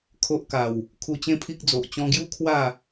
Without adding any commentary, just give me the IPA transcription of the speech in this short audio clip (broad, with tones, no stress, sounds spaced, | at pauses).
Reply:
kʰ o˦ ʔ k a˨˩ w | kʰ u˧ t͡ɕ ẽ˦ pʰ i˦ k̚ d͡z o˨ ʔ t͡ɕ ɔ̃˧ ɡ j u˦ kʰ w a˥˧